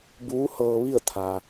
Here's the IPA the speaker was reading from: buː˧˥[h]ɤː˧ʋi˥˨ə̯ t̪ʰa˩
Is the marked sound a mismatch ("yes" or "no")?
no